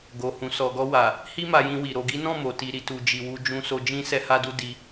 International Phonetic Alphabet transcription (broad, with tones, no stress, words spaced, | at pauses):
ɡo˧hũ˧ sɔ˨ɡɔ˧wa˨ | hi˦ma˧jĩ˧wi˨ ɾo˨ɡi˨˦nɔ̃˦˨ mo˨ti˧ɾi˨ tu˨d͡ʒi˨wu˧ d͡ʒũ˧so˧ d͡ʒĩ˦ sɛ˧ha˧du˧ di˧